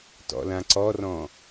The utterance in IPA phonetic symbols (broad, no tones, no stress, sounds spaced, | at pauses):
t ɔ̰ l ã ǀ ɔ r ɔ̃